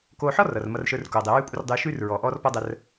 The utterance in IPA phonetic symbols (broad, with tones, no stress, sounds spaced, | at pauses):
k oː˧ ħ ɔ˥ r ʌ˩ r m ʌ˧ r ʃ ə˞˧ r k oː˩ dˤ e˩ ɹ ʉː˥ kʷʼ ə˥ r dˤ ʉː˧ ʃ ʉː˥ r ɹ ɔː˩ ʔ ɔː˥ r p ɔ˥ dˤ ə˧ r